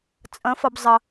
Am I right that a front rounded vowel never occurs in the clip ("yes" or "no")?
yes